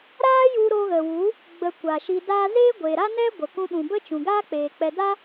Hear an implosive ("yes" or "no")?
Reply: yes